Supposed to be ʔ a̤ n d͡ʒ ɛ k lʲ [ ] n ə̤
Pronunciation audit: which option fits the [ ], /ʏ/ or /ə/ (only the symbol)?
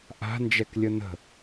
ə